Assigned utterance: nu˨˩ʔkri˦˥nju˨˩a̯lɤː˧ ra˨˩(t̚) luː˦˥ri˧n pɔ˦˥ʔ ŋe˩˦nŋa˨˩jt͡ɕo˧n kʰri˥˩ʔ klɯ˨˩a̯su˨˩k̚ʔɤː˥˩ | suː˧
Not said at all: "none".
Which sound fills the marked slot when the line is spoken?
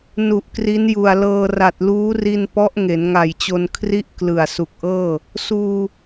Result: t̚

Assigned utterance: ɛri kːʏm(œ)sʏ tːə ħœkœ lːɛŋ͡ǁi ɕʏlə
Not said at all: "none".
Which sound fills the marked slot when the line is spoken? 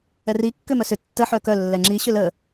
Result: œ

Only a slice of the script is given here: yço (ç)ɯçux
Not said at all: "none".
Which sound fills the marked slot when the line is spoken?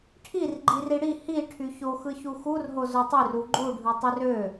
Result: x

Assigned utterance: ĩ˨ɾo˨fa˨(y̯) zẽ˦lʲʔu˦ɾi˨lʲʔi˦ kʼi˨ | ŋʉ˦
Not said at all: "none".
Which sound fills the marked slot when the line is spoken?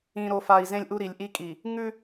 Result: i̯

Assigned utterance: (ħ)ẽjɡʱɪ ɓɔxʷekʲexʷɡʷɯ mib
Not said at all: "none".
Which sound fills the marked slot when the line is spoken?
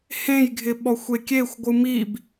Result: h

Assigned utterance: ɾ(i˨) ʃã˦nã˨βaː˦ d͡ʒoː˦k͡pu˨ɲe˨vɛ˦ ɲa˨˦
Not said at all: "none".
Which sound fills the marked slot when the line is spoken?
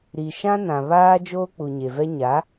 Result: i˨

